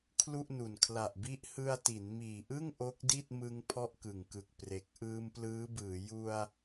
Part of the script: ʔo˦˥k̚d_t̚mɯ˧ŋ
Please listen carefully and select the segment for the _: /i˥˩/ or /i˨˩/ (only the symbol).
i˥˩